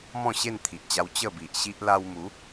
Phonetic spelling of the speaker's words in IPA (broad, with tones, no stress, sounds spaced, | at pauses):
m ɔ̃˥˧ ɕ e˥˧ n t̪ʰ i˨ ʔ t͡ɕ a˧ w t͡ɕ ə˥˧ b i˨ ʔ ɕ i˦ ʔ l a˧ w m u˨˦